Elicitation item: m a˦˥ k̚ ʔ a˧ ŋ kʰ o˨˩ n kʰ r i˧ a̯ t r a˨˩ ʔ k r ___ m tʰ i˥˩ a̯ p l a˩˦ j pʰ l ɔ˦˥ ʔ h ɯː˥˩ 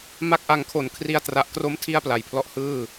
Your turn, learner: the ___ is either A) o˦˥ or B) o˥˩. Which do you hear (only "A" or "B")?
A